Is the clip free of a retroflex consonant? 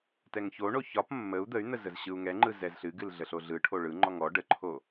no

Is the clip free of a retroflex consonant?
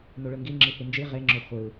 no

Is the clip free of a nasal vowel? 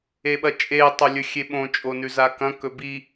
no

